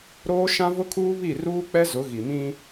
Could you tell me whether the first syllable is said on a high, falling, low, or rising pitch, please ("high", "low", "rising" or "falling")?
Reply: high